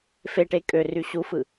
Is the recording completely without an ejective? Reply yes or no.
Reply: no